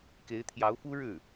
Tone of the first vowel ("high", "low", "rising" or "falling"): rising